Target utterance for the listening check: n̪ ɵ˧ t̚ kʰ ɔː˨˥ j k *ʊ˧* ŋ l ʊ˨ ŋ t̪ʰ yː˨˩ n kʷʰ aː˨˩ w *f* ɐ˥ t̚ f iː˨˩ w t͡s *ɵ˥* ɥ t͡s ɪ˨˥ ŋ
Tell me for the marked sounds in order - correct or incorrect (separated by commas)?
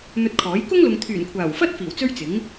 incorrect, correct, correct